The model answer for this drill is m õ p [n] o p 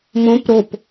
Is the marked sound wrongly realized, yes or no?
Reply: yes